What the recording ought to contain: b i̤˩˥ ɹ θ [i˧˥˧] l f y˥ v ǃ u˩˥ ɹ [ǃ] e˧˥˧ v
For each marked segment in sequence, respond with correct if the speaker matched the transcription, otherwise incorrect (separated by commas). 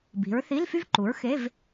correct, incorrect